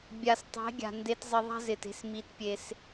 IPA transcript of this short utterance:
bʲ a˨ s tˤ e̤˨˦ ɡʲ a̤˨ n d e˧ t zˤ ɪ˧ ðˤ a̤˦ z ɪ˨ t e̤˧ s m i˧ t pʲ e˧ s

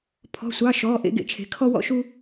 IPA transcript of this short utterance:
pʰ ɔ̤˧˥˧ sʷ ɑ˧˥˧ ʃ ɔː˧˥˧ ʔ ḛ˥ ɡ ḛ˨ t͡ʃʰ e̤˧˥ kʰ ɔ˥ w ɔ̰˥ ʃ u˥

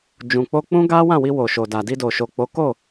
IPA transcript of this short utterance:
d͡ʒ ũ˨ k͡p o˧ k͡p ũ˦ ɡ a˦ w ã˦˨ w i˧ w o˨ ʃ o˨ d a˨ d i˧ d o˨ ʃ o˨ k͡p o˨˦ k o˦˨

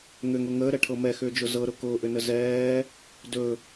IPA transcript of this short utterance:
ŋ ʏ ŋ ʊ ŋ əː ɾ ɛ ʈʰ ɤ m ɛ x ʏː d͡ʒ ʊ z ɤ ɾ ʊ k ʊː ʔ ʏ n ə z ɛː | d ɵ

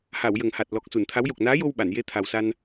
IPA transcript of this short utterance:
h a˨˩˨ w j ə˨˩ ŋ h a˨˩ t̚ l ɔ˨˩ k̚ s u˨˩˨ n t̪ʰ a˧˥ w j o˨˩ k̚ n aː˧˥ j o˧ w ɓ a˨˩˨ n j e˧˥ t̪ʰ a˨˩ w s a˧ n

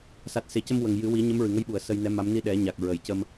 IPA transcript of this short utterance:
s a˨˩ t̚ s e˨˩ c ə˧ m w ə˨˩ ŋ j ɨ˨˩˦ w i˨˩˦ ɲ ə˧˥ m ɹ ɨ˨˩ ŋ ə˧˥ j ɓ u˨˩˨ ə̯ s ə˧ j n ɛ˧˥ m a˧˥ m n i˧ ɗ ɛ˨˩˦ ɲ a˨˩ k̚ ɹ ə˨˩˨ j c ə˧ m

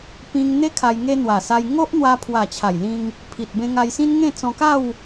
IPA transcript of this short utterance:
p ĩ˧ ŋ n̪ e˦ kʰ a˧ j ŋ e˦ n̪ w a˨˩ s a˧ j ŋ o˦ ʔ n̪ w a˧ pʰ w a˨˩ t͡ɕʰ a˨˩ j l ĩ˧ ŋ | pʰ i˨ t̚ b ẽ˧ ŋ a˧ j s ĩ˦ n ŋ ẽ˥˧ t͡s ɔ̃˧ k a˥˧ w

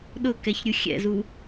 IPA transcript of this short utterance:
ɗ ʊ k ɛ ç ɾʲ u xʲ ɛ̰ z u

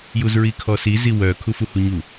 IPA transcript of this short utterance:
j u z ɹ i kʰ ɔ s i z i w œ kʰ u f u h u ɲ u

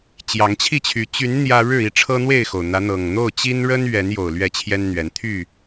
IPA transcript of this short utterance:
t͡ɕ j ɑ˨˦ ŋ t͡ɕʰ i˥˨ t͡ɕʰ y˨˦ t͡ɕ y˨˦ n n̪ j ä˦ ɻ ɻ̩˥˨ i˥˨ ʈ͡ʂʰ ɤ˦ n̪ w e˥˨ ɪ̯ x o˩ ʊ̯ n̪ ä˨˦ n̪ ɤ˨˩ ŋ n̪ o˥˨ ʊ̯ t͡ɕ i˦ n ɻ ə˦ n ɥ ɛ˨˦ n j o˨˩ ʊ̯ l ɥ ɛ˥˨ t͡ɕʰ j ɛ˦ n n̪ ɥ ɛ˨˦ n t̪ʰ y˥˨

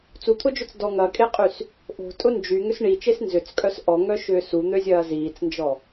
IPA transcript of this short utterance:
t͡s u t̪ʰ ʊ d͡ʒ ʏ t͡s d ɔ ŋ ɐ kʼ e qʼ y s | ʔ o̤ tʼ ʊ n d͡ʒ y ŋ ʏ s ɳ i t͡ʃ e s n z ʏ t͡s kʼ œ s ʔ ɔ ŋ œ ʃ ʏː s u n̪ ø zʲ ɐː z iː t͡s n d͡ʒ ɔ

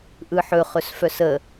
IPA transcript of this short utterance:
ʔ ɯ ħ ɵ χ ɵ s f œ s ə

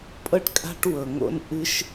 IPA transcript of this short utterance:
pʼ ɤ˥ ʈ kʼ a̤˥ ʈ w ɤ˩ ŋ o̰˥ n ʔ ɨ˥ ʃ

